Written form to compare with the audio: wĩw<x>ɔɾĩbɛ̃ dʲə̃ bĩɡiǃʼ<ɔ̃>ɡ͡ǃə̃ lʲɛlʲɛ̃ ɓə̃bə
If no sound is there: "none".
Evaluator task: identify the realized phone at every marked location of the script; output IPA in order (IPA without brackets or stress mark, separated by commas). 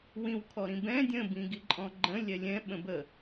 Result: kʰ, ɔ̃